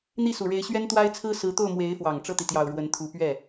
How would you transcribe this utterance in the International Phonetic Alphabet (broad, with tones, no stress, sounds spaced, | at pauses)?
n̪ i˥˩ s u˨˩ ɻ e˧˥ ɪ̯ ɕ ɥ ɛ˥ n t̪ w a˥ ɪ̯ t͡sʰ ɹ̩˥ s ɹ̩˧˥ t̪ o˥˩ ʊ̯ m w e˧˥ ɪ̯ f w ɑ˨˩ ŋ ʈ͡ʂ ɤ˥˩ t̪ i˩ t̪ j ɑ˨˩ ʊ̯ ɻ w ə˧˥ n t̪ʰ u˧˥ p ɥ ɛ˥˩